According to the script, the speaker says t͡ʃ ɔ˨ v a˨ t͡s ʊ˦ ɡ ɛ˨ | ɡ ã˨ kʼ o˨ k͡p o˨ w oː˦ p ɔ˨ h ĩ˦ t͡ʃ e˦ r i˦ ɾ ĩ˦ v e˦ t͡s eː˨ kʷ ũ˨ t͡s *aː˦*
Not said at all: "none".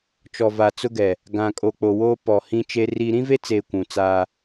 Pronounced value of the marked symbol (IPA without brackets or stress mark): aː˦